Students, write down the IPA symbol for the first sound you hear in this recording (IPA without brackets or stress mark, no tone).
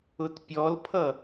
ʊ